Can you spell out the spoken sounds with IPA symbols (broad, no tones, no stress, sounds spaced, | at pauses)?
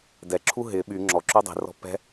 d ɛ ǁʰ u ɦ ɪ ɓ y ŋ͡ǁ ɔ ǁ y dˤ i̤ r ɔ̤ p ɛ̤